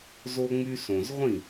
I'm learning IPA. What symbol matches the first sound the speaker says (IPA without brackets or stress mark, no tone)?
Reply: z